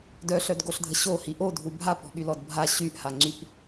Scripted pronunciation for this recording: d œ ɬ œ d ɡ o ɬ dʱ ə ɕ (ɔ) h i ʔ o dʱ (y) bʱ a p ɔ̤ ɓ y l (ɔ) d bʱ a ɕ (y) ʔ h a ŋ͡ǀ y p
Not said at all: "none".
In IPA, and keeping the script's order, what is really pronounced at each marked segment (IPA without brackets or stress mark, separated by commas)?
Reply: o, u, ɔ, y